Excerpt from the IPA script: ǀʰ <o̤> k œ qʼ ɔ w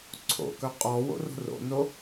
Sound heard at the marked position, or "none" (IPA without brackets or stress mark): o̰